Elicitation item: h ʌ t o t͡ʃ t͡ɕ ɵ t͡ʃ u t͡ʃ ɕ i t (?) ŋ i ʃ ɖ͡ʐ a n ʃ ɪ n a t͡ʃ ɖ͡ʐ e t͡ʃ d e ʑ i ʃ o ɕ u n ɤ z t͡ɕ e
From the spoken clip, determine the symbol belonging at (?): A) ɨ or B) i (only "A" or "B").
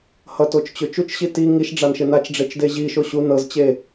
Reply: B